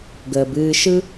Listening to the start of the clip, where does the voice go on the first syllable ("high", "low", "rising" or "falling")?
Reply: low